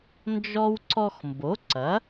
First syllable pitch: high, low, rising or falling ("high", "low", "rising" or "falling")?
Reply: high